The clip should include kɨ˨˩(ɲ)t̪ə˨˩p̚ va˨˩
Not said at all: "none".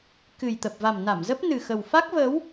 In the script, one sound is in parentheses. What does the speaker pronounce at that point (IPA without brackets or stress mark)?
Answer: j